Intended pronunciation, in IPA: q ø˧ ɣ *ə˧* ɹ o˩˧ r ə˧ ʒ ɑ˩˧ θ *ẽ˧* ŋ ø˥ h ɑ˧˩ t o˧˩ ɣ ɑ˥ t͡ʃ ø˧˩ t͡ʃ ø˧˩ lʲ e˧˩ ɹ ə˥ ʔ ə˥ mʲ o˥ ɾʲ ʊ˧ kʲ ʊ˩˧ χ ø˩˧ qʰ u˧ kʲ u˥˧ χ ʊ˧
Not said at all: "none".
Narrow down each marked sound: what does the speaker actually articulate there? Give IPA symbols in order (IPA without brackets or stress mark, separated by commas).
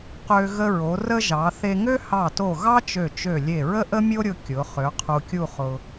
ə˧, e˧